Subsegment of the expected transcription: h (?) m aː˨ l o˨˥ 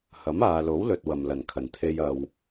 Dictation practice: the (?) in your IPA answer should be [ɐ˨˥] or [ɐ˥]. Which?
ɐ˨˥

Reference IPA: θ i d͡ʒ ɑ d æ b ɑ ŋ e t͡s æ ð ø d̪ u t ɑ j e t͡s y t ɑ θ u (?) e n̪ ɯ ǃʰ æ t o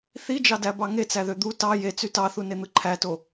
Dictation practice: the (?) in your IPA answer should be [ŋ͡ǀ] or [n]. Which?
n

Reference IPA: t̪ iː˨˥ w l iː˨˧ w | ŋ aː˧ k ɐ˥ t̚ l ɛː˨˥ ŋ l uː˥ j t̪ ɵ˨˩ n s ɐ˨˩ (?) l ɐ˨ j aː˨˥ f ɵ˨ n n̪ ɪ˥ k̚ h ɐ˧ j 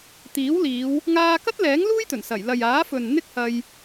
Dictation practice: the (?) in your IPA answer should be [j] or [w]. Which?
j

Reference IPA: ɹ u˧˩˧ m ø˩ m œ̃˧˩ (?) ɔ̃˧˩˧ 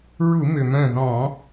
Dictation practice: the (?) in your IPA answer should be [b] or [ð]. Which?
ð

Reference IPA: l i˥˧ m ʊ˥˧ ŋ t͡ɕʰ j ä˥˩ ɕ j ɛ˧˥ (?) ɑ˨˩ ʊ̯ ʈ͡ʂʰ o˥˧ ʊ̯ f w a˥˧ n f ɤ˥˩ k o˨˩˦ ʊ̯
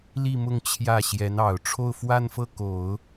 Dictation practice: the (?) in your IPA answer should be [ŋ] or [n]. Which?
n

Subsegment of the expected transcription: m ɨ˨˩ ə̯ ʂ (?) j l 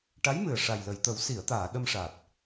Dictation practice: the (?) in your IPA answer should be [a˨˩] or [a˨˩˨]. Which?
a˨˩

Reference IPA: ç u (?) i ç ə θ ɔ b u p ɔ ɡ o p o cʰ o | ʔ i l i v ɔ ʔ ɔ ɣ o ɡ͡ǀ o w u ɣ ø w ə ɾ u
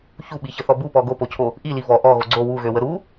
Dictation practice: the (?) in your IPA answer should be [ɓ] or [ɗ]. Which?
ɓ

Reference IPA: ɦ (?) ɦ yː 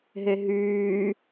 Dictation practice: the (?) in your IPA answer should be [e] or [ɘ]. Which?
e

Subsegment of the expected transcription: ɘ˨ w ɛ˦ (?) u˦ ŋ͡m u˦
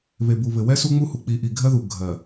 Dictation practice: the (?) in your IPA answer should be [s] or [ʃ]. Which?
s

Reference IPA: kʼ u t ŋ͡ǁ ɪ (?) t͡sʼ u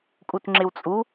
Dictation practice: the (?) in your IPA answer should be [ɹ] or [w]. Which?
w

